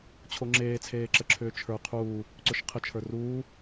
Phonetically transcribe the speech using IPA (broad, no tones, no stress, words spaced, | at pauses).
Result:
t͡ɕʰoŋ͡ǁeːt͡sʰeːǁə ǁʰʏːt͡ʃʰə˞ qʰuː | ǀʏʃqʰət͡ʃʰə˞ ruː